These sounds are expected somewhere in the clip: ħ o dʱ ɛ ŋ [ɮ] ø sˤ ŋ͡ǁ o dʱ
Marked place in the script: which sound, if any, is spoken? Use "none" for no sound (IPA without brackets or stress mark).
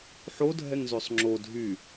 z